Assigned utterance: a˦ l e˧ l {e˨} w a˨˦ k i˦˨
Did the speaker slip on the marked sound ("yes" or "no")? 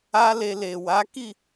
no